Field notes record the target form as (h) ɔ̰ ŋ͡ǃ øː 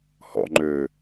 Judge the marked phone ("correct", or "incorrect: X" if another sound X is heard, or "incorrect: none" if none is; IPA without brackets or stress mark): correct